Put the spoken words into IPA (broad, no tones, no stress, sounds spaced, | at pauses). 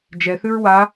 d͡ʒ ɛ θ ʉ ɹ w a